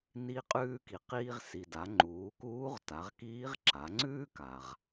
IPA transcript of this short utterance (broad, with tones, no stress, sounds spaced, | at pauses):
n i˧ qʼ ʉː˧ k i˩ q iː˧ ʁ s i˩ d a˩˧ ŋ͡ǃ uː˩˧ k uː˧˥ ʁ t a˩˧ ʁ k iː˧˥ ʁ ǁ a˩˧ ŋ͡ǀ ʉː˥ k a˩ ʁ